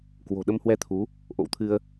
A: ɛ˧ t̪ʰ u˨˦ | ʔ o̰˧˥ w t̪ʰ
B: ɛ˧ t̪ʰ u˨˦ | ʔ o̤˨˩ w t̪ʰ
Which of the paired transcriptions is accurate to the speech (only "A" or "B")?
A